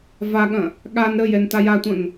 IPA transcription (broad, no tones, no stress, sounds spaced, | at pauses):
v a ɠ ɐ̃ | ɠ a n ɾ ə j ɛ n t a j a tʷ ɐ̃ n